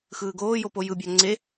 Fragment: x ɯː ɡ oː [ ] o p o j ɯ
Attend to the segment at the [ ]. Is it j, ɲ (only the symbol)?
j